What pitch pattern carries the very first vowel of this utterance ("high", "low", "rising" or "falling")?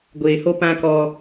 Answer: low